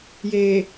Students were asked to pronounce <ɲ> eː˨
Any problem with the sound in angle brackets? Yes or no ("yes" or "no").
yes